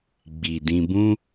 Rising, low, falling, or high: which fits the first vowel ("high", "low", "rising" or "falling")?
low